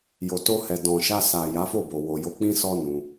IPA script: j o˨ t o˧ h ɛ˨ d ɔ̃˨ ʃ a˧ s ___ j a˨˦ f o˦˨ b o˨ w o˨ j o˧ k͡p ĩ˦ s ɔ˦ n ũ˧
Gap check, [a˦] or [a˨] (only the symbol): a˨